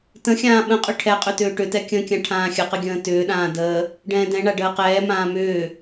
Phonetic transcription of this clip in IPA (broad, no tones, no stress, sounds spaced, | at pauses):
t ə̃ xʲ ãː ɓ ə̃ qʼ ʏ ʈʰ ɛ qʼ ʏ t ʏː ʈ ʏ t ɛ kʲ ə̃ kʲ ã ʈʰ ãː xʲ ə q ə ɡʲ ə̃ː t ʏː ɗ ãː d əː | ɖ ɛ̃ː d ɛ̃ ɳ a ɖ əː q ɛː m ãː m ʏː